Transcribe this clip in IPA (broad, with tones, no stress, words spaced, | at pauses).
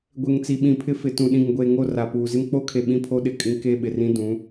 ɡʷe˨ŋt͡si˨ɓĩ˨pʰɪ˦ fɪ˨tũ˨ ɗĩ˨ŋ ɡʷe˨ŋo˦˨ ra˨puː˨ zɪ˦mk͡po˦kʰe˨ ɓĩ˦pʰo˦ɗɪ˦˨ kʼɪ˦ŋke˦ɓɪ˨rĩ˦ dũ˨˦